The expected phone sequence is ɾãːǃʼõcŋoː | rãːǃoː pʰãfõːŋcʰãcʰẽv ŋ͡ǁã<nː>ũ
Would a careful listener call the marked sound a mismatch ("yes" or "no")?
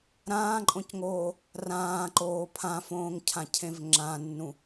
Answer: no